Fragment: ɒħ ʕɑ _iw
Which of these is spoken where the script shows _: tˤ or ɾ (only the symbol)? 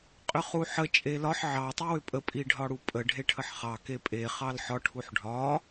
tˤ